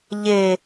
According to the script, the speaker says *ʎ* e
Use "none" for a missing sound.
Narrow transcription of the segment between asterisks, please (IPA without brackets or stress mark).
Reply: ʎ